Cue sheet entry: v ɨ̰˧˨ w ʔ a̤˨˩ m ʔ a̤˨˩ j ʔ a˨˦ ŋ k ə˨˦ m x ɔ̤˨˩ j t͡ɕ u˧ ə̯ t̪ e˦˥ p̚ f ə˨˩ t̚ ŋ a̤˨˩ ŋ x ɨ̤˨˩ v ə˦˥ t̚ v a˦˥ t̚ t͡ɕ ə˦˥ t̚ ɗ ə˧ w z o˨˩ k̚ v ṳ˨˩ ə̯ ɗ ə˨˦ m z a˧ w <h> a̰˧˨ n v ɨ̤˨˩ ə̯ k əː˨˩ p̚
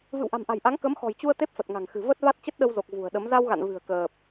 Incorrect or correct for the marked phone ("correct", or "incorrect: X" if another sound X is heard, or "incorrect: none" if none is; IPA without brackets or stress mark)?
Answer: incorrect: ɣ